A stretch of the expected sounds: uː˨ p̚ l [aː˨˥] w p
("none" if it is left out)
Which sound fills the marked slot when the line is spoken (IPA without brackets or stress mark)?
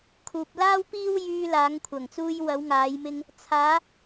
aː˥